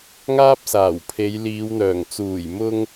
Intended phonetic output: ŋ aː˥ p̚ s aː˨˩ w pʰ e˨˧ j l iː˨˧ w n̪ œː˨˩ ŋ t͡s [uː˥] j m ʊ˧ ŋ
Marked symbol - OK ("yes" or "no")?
no